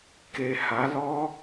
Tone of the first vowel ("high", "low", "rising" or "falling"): low